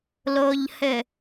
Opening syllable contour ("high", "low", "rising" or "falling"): low